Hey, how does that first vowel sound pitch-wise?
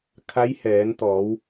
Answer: rising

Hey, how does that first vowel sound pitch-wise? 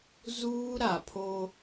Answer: high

